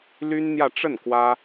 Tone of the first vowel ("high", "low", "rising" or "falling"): high